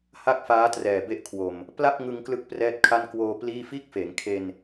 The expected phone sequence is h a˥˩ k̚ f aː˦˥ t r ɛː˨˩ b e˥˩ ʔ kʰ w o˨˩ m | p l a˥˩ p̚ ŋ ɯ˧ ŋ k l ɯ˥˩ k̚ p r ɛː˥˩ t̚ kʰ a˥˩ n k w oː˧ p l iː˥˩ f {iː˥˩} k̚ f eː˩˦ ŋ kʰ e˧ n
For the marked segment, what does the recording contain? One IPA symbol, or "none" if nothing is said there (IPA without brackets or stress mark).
iː˥˩